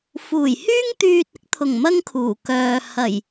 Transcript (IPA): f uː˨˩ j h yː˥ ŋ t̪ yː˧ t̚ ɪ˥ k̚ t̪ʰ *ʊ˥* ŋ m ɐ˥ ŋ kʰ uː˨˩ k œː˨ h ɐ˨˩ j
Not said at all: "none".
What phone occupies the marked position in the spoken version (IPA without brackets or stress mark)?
ʊ˨˩